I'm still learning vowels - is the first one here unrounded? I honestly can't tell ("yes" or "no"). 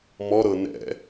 no